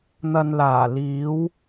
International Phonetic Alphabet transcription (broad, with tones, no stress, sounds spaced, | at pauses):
n̪ ɐ˨ n l aː˨˩ l iː˨˧ w